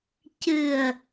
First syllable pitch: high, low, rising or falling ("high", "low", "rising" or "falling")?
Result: low